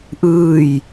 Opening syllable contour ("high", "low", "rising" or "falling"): falling